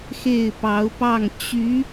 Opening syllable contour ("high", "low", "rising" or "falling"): falling